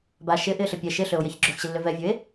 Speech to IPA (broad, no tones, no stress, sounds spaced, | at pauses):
b a ʃ ɪ ʔ ɪ ɬ ɪ pʲ ɛ ʃ ɪ ɬ ø o̯ j ɛ ç ɡ͡ǁ ø x ɕ ɪ lː ø v ɛ vʲ ø e̯